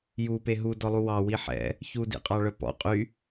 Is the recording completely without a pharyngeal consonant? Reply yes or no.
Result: no